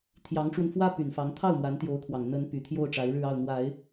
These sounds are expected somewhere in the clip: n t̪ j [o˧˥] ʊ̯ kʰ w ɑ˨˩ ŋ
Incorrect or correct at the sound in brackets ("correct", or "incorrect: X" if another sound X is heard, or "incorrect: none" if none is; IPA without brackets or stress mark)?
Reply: correct